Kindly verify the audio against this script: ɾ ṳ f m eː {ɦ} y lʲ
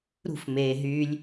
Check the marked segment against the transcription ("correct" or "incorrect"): correct